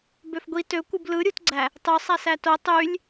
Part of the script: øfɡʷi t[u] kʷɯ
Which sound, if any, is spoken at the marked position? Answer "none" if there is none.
ø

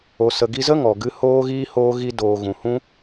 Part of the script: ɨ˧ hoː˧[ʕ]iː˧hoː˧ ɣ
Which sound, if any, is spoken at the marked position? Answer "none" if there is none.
ɣ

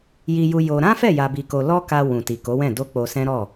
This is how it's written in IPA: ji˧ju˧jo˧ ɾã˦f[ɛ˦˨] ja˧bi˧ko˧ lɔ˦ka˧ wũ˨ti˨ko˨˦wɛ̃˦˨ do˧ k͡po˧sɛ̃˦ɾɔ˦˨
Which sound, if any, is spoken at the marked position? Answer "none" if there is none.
ɛ˦˨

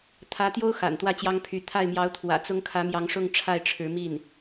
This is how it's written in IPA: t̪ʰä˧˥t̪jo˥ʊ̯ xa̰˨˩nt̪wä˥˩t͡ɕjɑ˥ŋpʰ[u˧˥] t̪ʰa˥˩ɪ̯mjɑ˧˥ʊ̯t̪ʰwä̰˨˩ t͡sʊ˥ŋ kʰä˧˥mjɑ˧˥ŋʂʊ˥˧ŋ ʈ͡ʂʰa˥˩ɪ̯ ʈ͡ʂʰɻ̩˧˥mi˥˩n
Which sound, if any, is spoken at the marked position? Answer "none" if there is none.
y˧˥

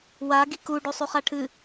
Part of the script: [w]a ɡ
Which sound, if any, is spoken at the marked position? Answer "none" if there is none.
w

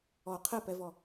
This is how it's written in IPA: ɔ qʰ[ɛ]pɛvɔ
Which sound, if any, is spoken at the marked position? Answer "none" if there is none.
ɛ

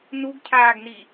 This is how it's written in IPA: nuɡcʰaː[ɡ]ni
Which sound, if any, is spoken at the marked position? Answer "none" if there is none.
ɡ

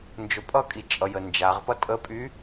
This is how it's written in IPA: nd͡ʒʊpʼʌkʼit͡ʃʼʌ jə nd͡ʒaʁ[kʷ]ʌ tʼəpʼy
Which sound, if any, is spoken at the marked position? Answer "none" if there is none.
p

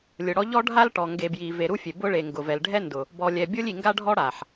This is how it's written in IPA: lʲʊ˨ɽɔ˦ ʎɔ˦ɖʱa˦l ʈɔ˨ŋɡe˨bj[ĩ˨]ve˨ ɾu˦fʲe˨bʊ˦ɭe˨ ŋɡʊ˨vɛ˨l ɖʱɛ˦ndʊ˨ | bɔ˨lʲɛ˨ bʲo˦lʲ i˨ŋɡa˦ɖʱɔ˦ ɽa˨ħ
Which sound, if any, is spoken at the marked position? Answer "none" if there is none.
i˨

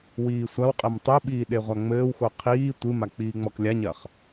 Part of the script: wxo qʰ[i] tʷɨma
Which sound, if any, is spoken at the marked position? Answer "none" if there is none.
iː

